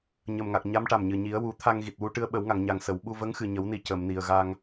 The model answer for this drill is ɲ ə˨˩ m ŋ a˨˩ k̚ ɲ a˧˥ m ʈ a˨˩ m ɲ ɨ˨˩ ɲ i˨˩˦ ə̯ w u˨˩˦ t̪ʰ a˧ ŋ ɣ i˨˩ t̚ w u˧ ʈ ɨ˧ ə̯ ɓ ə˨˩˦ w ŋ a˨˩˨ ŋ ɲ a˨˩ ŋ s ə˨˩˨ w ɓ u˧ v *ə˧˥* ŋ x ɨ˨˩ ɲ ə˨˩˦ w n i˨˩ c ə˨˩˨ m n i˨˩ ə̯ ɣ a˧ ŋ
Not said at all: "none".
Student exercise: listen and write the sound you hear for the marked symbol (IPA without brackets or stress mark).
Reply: ə˧˥